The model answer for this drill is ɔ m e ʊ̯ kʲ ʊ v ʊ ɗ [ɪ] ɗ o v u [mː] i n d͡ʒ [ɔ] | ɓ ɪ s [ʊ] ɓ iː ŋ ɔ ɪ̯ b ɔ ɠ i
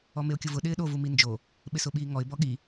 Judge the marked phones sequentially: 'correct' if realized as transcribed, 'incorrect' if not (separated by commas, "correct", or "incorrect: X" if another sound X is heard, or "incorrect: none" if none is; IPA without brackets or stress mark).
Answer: incorrect: ɪː, incorrect: m, incorrect: o, correct